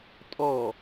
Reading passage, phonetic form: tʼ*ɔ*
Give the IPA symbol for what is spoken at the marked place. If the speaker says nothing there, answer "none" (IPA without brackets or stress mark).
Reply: ɔ